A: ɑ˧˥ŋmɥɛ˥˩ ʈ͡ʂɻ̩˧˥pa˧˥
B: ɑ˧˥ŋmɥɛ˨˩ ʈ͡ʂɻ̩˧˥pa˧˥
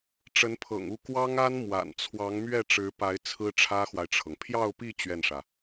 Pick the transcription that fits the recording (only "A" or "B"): A